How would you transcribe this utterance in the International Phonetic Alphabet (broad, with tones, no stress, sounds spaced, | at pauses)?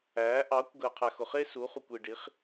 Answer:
æː˨˦ ʔ ɑ˨˦ kʷ ɡ əː˨ qʰ æ˨ x ʊ˨ χ ɪː˦ s u˨˦ χ u˨ kʷ i˨ ɖ i˨˦ χ